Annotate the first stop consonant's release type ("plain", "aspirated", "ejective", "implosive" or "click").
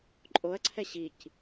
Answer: click